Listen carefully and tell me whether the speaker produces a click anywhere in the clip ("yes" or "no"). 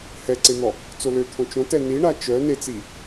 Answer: yes